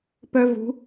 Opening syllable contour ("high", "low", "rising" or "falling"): high